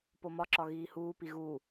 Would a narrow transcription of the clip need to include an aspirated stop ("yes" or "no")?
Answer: no